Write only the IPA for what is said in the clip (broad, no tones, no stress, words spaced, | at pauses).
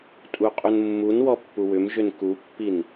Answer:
tʼuqʼunmːunwɔ pːuwʏmʒʏn kupːin